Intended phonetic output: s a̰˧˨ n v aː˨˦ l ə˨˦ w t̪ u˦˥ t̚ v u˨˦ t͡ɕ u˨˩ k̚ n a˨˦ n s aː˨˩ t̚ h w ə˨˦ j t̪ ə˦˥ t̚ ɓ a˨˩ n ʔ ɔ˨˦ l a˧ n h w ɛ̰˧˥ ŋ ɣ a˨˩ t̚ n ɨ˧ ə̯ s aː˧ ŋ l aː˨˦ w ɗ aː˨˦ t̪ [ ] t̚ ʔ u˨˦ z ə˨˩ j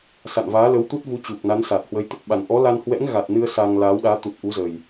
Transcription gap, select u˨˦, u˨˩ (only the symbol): u˨˩